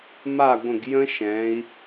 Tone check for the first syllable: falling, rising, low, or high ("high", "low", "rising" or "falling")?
falling